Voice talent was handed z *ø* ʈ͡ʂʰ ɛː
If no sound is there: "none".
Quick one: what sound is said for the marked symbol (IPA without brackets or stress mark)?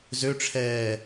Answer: ø